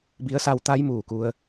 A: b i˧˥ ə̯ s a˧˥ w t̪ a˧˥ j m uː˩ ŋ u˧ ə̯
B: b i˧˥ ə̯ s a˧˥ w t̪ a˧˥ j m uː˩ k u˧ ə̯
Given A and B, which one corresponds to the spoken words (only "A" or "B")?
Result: B